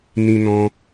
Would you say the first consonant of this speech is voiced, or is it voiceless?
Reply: voiced